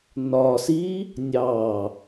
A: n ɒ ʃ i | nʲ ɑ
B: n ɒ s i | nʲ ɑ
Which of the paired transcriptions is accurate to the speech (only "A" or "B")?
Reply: B